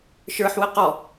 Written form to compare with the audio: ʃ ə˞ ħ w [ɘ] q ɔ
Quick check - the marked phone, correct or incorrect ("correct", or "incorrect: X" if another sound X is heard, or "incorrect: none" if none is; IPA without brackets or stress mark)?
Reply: correct